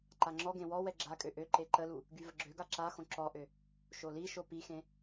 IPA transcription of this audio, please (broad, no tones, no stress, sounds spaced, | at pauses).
ǃ a ŋ͡ǁ ɔ ɡ ẽ w ɔ w ɛ ɡ͡ǁ a kʼ ø ʔ ø ǃ e ǃ ə l u | ɡ y v ə ɡ͡ǁ ø ɡ a ǁ a x õ ǁ ɔ ʔ ø | ʃ o l i ʃ o p i x ẽ